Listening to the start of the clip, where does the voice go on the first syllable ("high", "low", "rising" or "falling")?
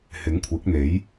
rising